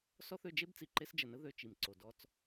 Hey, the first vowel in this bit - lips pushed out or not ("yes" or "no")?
yes